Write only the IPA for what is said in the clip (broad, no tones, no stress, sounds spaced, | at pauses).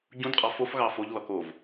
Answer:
ɟ ũ d qʼ ɑ f o f ɣ ɑ f o ʎ l ɔ k o v